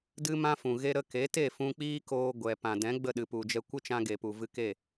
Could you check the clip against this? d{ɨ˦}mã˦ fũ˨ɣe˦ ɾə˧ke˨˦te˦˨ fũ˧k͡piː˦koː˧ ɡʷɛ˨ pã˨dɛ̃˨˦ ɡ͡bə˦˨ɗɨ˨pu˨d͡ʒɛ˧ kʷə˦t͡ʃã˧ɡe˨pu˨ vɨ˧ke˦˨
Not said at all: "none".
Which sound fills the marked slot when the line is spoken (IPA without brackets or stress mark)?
ɨ˦